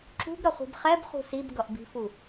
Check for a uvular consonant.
present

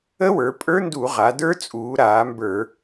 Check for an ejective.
present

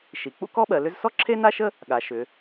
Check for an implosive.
present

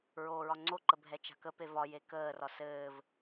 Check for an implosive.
absent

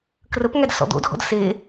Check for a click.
absent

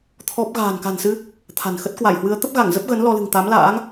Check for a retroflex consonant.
absent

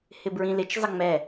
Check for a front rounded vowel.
absent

